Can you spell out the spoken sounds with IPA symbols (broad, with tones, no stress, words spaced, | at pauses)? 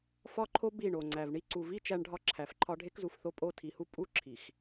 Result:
fɒ˦ǃʰo˦ bi˦˨ɳo˨ŋ͡ǀæ˨vɳi˦ ǀu˨vi˦ t͡ʃæ˦ɳɖʱɒ˦ ǁʰæ˨fǃʰɒ˦ ɖʱe˦kzu˨fθo˦pʼo˦˨ tʰi˨hu˦ pʼu˦ ǁʰi˨x